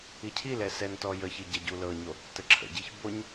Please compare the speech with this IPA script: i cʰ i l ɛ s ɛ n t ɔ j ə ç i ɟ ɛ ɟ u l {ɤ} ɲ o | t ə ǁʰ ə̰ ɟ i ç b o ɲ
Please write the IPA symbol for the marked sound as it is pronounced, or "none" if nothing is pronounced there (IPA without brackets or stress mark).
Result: ɤ